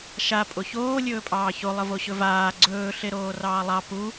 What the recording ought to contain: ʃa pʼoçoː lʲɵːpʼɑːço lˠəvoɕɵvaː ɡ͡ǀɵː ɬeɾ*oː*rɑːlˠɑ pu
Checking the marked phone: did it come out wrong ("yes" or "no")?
no